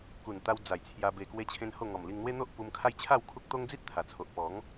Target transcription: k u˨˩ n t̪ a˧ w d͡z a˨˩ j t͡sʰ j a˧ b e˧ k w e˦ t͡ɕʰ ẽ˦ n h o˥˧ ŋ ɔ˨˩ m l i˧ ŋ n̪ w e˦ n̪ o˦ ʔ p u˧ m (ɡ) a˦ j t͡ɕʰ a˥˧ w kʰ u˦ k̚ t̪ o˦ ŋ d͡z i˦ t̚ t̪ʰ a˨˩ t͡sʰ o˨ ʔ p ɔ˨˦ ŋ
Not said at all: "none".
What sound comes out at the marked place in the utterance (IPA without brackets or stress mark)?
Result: kʰ